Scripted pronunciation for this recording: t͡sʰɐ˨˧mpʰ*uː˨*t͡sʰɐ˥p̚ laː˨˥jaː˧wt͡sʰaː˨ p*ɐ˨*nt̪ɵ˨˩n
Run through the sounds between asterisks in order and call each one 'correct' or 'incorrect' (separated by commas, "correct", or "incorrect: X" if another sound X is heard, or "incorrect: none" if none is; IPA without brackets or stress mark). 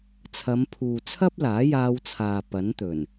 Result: correct, incorrect: ɐ˨˥